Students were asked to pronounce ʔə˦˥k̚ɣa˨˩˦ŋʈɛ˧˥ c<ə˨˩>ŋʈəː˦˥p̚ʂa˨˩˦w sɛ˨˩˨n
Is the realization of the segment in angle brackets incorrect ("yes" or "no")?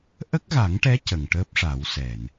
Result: no